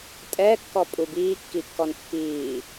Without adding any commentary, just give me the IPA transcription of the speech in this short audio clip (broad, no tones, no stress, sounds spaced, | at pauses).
tʼ ɛː kː ɔ pʼ u b iː kː i kː ɔ n pː iː